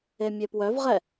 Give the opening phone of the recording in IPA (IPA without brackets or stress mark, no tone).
e